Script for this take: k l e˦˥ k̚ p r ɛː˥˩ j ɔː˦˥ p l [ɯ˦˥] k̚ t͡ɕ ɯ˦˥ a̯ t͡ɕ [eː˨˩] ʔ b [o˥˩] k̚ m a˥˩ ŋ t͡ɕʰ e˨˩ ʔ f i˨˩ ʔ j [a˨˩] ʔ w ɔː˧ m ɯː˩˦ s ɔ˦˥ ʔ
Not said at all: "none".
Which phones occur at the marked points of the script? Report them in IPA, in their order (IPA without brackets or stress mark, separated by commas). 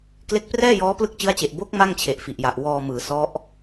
ɯ˦˥, e˨˩, o˦˥, a˨˩